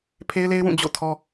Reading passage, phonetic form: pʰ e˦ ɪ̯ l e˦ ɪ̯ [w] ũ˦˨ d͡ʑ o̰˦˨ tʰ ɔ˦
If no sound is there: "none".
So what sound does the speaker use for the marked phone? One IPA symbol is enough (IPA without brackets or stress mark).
w